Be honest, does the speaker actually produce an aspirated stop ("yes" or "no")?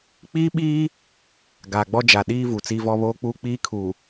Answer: yes